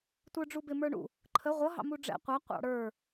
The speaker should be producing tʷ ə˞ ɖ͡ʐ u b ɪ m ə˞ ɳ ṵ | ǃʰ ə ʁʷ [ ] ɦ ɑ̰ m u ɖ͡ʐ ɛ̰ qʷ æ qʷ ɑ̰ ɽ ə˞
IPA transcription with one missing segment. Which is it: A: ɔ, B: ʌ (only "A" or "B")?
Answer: B